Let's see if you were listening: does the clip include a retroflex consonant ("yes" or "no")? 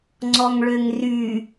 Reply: yes